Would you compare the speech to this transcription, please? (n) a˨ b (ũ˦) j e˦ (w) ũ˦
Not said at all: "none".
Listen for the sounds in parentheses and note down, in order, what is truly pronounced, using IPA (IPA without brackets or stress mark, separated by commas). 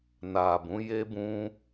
n, ũ˨˦, b